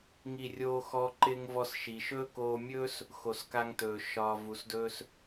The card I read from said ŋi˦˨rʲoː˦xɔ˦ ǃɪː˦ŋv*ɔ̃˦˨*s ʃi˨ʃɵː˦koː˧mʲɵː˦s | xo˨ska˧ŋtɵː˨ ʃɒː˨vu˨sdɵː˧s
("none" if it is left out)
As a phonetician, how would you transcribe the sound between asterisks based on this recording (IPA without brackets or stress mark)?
ɔ˦˨